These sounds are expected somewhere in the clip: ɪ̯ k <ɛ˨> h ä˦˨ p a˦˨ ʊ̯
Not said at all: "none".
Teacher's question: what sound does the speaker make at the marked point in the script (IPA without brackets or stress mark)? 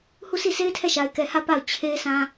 ɛ˨